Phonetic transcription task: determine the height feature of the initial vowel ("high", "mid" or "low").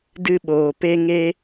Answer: high